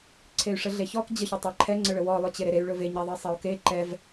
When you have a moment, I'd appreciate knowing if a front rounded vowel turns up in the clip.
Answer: yes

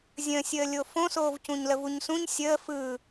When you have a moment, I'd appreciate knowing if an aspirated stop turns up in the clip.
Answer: no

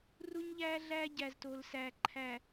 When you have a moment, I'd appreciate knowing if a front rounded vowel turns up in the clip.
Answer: no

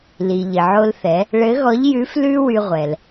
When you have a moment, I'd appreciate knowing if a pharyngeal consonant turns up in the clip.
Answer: yes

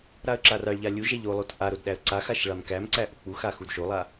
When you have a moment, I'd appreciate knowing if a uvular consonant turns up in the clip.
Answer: no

